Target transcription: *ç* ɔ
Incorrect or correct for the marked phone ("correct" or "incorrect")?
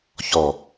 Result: correct